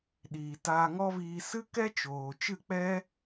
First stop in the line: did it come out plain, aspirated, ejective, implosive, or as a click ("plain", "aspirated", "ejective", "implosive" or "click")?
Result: implosive